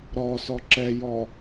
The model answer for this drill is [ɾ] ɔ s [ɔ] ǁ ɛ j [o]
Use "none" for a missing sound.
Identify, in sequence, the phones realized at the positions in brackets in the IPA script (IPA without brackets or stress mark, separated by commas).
ɾ, ɔ, ɔ